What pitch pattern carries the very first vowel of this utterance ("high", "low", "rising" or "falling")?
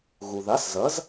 low